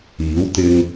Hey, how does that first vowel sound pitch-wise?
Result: rising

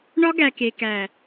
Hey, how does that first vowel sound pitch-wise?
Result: high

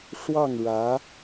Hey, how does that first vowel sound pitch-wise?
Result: falling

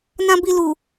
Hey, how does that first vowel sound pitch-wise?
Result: high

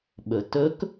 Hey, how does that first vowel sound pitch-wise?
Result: low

